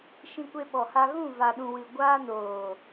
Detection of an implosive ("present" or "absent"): present